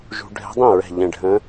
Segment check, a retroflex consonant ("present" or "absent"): present